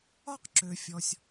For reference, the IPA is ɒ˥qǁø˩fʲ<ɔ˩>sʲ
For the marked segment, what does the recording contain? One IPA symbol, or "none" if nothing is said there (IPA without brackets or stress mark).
ɔ˩